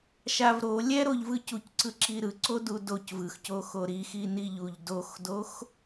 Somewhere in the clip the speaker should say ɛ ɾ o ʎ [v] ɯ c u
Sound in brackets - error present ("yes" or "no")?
no